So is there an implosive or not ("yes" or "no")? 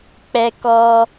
no